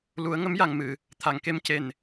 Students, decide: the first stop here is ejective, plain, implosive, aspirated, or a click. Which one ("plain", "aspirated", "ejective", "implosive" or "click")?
aspirated